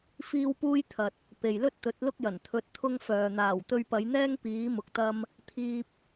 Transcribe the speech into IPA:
f iː˥ w p uː˥ j t̪ʰ ɐ˨ t̚ | p e˨ j l ɵ˥ t̚ t̪ ɵ˨˥ t̚ l ʊ˥ k̚ j ɐ˨˩ n t̪ʰ ɵ˧ t̚ t̪ʰ ʊ˥ ŋ f œː˨ n̪ aː˨˩ w t̪ ɵ˧ ɥ p ɐ˨˧ j n̪ ɛː˥ ŋ p iː˨˥ m ʊ˨ k̚ t̪ ɐ˧ m | t̪ʰ iː˧ p̚

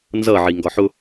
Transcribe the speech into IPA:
n z ʌ ʕ i ŋ ɡ ɒ ħ ʊ

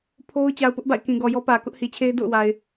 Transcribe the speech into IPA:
pʰ o˦ ʊ̯ t͡ɕ a˨ ʊ̯ p ʊ˦ ʔ b a̰˦˨ ɪ̯ k ĩ˨ ɡ ɔ˨ j ɔ˦ p ä˨ k ʊ˦ ʔ h i˨ t͡ɕʰ e˦ ɪ̯ d o̰˦˨ ʊ̯ w a˨ ɪ̯

